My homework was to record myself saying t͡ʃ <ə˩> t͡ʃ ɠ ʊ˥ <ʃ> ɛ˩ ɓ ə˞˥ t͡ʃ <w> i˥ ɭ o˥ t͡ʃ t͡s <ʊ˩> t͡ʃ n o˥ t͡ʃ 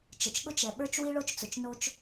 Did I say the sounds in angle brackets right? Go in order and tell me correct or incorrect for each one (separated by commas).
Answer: correct, incorrect, correct, correct